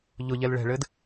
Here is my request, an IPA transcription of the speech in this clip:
ʎ ʊ ʎ ɛ l ɭ ɛ̤ ɭ ɘː d

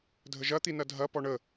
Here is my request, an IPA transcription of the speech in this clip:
dʱ ə ʒ ɐ t̪ i n ɐ dʱ ɐ p ɔ ɳ ə

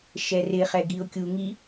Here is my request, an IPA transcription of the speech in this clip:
ʃ ɛ r ɪ χ ɛ ɡ i ʊ̯ kʲ u ŋ i

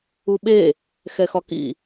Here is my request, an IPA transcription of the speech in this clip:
u ɓ e | x ɛ x ɒ k ḭ

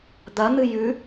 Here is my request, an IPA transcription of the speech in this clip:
d̪ ɐ n̪ ɨ j ʉ

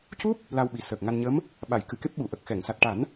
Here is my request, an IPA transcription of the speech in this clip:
c u˦˥ p̚ | l a˧ w ɓ i˨˩ s əː˨˩ k̚ ŋ a˧ n ɲ ə˧˥ m | ɓ a˨˩˨ j k ɨ˨˩˨ k e˦˥ p̚ ɓ u˨˩˨ ʔ ə˨˩ k̚ x ɛ˨˩˨ ŋ s a˨˩ t̚ ʈ a˨˩˦ n

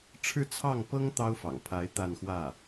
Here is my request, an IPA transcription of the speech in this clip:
ʈ͡ʂʰ ɻ̩˥˧ t͡sʰ ɑ˥˩ ŋ p ɤ˥ ŋ t̪ ɑ˥ ʊ̯ f ɑ̰˨˩ ŋ pʰ a˧˥ ɪ̯ t̪ a˥˧ n x w ä˥˩

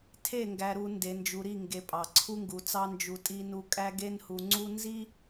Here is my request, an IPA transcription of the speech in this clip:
tʰ e˦˨ ŋ ɡ æ˨ ɾ u˨ n d e˨ n d͡ʒ u˨ ɾ i˦˨ ŋ ɡ e˨ pʼ ɑ˨ ǀʰ u˦ ŋ ɡ u˨ t͡s ɑ˦ n d͡ʒ u˨ tʼ i˦ n u˦˨ kʼ æ˦ ɡ e˦ n h u˨ ŋ͡ǀ u˦ n z i˦

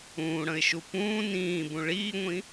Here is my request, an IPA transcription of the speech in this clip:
ũː ɽ ə̃ ɪ̯ ʃ u p ũː n ĩː b ũ ɭ iː ŋʷ ĩ

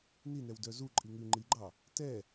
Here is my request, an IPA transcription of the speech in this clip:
n i n ɛ w d œ z u ǃʼ i ŋ ʉ ŋ͡ǃ i ɡ͡ǃ ɑ | t ɛ

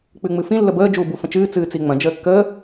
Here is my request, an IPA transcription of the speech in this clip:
k͡p ɨ ŋ͡m ɨ f ĩ lː ə b əː d͡ʒ uː b u f ə̃ t͡ʃ ɨː t͡s ɨː t͡s i ŋ͡m ɐ̃ d͡ʒ əː kː əː

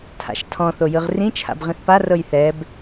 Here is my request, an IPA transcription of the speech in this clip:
tʰ a̰ ʃ tʰ ɔ̃ θ o j ɯ ʁ r ĩ t͡ʃʰ a̰ b ʁ ĩ θ p a r ɤ j θ ɛ b

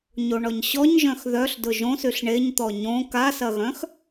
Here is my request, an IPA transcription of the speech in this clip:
ɲ o ɳ ɔ ɲ ɕ ɔ ɲ ʒ œ̃ x ð œ ɬ d ʊ ʒ õ s y ɬ ɳ e ɲ t̪ ɔ ɲ õ k a s ɐ ɣ œ̃ x

